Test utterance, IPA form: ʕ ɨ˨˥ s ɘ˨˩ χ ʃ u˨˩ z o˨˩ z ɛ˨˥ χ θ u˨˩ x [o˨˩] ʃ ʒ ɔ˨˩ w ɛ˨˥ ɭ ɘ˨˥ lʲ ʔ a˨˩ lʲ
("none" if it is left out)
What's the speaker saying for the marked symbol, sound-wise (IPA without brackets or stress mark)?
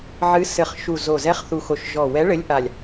o˨˩